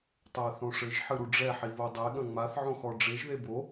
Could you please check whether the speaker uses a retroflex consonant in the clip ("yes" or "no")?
yes